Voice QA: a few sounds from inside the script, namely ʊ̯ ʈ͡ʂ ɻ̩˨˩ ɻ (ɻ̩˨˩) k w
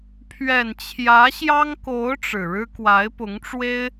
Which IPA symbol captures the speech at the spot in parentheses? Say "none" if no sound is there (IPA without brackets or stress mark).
ɻ̩˥